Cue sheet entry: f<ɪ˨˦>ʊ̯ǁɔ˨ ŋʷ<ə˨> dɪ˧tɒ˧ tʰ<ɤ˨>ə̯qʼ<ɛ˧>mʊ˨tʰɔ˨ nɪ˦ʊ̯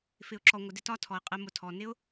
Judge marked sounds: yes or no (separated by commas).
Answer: no, yes, no, yes